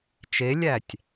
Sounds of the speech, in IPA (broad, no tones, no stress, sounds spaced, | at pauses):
t͡ʃ e lʲ æ tʲ